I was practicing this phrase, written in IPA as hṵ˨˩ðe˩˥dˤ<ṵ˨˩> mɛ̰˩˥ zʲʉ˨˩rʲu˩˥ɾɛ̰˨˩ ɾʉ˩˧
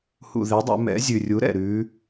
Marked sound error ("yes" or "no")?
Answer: yes